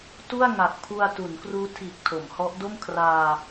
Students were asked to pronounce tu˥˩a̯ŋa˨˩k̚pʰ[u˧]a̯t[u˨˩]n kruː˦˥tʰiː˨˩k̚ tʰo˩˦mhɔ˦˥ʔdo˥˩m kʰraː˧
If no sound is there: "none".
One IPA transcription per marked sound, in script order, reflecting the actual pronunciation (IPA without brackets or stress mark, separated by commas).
u˧, u˩˦